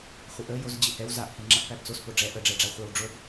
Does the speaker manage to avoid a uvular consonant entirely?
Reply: no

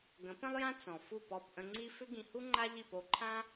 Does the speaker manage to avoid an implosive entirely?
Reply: yes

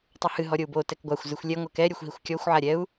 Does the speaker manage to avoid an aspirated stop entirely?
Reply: yes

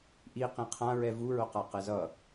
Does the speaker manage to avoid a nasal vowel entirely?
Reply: no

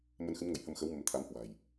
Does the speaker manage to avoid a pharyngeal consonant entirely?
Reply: yes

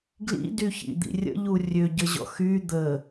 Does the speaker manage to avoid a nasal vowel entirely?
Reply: yes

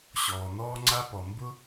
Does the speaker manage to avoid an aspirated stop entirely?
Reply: yes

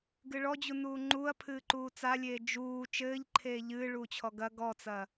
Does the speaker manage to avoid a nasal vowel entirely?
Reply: yes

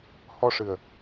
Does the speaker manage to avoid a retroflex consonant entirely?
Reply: no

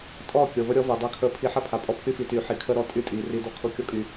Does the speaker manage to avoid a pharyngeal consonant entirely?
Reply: no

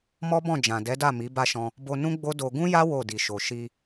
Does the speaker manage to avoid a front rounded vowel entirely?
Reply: yes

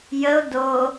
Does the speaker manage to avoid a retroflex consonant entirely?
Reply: yes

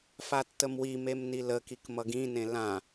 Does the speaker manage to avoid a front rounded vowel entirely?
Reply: yes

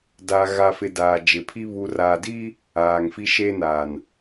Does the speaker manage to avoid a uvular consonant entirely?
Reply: yes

